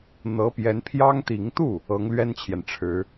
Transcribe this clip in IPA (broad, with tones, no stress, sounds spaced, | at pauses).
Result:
n̪ ɤ˧˥ p j ɛ˧˥ n pʰ j ɑ˥ ŋ t̪ i˧˥ ŋ t̪ u˥˩ | ɤ˧˥ ŋ l ɥ ɛ˥ n t͡ɕʰ j ɛ˨ n ʈ͡ʂʰ ɻ̩˧˥